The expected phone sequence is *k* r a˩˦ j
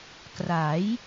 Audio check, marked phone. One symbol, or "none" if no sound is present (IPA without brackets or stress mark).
k